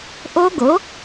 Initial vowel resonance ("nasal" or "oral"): oral